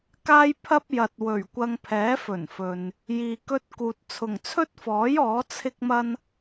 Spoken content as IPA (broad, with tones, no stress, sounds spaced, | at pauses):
k aː˥ j pʰ ɐ˥ p̚ j ɐ˨ t̚ w ɵ˨˩ ɥ kʷ ɐ˧ ŋ pʰ ɛː˨˥ f ɵ˨˩ n f ɵ˨ n | j iː˨ k ɵ˧ t̚ k uː˨ t̚ t͡sʰ ʊ˨˩ ŋ t͡sʰ ɵ˥ t̚ f ɔː˨˥ j ɔː˨˥ t͡sʰ ɪ˥ k̚ m ɐ˥ n